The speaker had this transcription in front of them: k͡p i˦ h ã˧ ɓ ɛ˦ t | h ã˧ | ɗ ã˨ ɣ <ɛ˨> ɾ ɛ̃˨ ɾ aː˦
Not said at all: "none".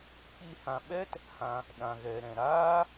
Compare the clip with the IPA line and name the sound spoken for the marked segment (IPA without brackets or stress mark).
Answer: ɛ˨